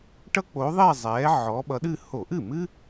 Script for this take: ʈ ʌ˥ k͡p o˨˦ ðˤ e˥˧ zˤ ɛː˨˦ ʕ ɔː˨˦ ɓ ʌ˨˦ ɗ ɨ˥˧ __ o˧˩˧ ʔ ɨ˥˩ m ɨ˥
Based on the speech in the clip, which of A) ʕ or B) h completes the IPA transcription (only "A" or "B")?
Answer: B